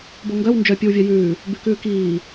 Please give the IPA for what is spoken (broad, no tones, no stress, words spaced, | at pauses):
boŋɡœw nd͡ʒœ pʲʉwvʲœjʉː | bʉkʉːkiː